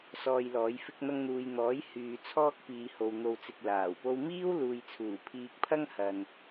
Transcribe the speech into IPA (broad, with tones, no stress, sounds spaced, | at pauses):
s ɔː˧ j l ɔː˨˥ j f ɪ˧ k̚ n̪ ɐ˧ ŋ n̪ uː˨ j n̪ ɔː˨˥ j h yː˨ t͡sʰ ɔː˥ k̚ p iː˨˧ h o˨ w n̪ o˧ w t͡s ɪ˧ k̚ l aː˨˩ w p o˥ w m iː˥ w l uː˨ j t͡sʰ uː˨˩ pʰ iː˧ k̚ pʰ ɐ˥ ŋ h ɐ˨ n